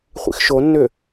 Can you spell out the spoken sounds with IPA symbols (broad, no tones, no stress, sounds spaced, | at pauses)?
χʷ ḭ x ʃ o nː ʏ